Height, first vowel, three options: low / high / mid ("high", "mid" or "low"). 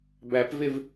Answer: low